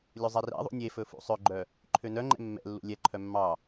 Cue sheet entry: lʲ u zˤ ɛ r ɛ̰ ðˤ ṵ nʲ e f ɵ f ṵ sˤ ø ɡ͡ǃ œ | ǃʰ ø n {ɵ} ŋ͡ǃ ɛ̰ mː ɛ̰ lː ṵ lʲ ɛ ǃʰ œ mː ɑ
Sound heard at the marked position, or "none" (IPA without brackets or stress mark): œ